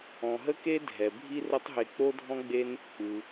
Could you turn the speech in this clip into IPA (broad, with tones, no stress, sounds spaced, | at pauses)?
ɔ̃˩ ɦ ə˥ k e˥ dʱ ɛ˩ bʱ i˥ r ə˥ tˤ ɦ e˧ k͡p o˥ dʱ ɔ̃˥ ɡ͡b e˥ n | k͡p ɯ˩